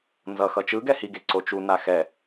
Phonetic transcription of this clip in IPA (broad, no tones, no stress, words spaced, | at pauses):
nzʌ xʌt͡ʃɯɡɛ hiɡe ǀot͡ʃu naxɛ